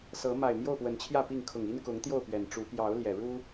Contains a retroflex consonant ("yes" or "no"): yes